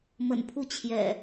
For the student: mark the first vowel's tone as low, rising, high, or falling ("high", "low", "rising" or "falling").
low